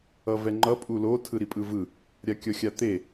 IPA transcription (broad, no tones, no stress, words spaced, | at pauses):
ʌvɛŋ͡ǃʌ pʼulo tʰɯɾipʼɯvɯ | ɾʲakʲʌxʲat̪e